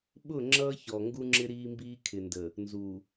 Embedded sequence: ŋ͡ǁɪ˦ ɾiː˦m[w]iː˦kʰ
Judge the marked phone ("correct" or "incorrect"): incorrect